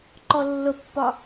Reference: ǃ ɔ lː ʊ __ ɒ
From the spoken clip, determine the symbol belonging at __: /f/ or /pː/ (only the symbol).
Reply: pː